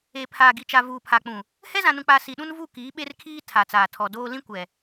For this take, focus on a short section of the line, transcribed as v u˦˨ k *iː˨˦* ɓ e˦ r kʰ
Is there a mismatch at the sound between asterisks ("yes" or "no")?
no